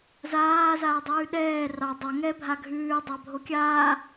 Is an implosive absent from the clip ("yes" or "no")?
no